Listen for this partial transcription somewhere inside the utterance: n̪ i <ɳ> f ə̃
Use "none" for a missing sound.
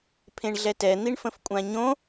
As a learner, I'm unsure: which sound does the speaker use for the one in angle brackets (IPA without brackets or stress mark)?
ɳ